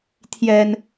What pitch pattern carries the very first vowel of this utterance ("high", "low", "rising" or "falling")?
low